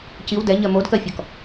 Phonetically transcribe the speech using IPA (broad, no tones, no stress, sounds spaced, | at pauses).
c i w d ɛ ɲ ɜ m o d k ɜ fʲ ɔ k